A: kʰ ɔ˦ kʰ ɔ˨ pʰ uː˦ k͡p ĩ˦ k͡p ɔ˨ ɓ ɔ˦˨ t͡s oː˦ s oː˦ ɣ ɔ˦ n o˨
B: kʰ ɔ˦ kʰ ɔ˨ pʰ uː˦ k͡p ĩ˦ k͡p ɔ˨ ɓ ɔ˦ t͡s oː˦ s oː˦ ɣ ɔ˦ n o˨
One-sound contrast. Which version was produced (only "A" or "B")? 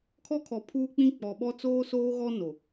B